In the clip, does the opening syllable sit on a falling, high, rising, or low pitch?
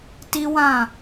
high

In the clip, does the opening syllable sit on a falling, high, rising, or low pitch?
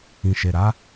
low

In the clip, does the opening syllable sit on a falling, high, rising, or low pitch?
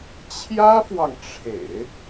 high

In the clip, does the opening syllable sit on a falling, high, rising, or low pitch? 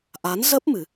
rising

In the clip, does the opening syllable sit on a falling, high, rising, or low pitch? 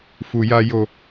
low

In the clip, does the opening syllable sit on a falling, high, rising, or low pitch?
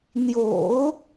low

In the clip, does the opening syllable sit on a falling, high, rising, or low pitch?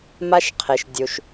high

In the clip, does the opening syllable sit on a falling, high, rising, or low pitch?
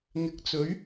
low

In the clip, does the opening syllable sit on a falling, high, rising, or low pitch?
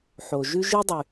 low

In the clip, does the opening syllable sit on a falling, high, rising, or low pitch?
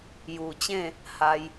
low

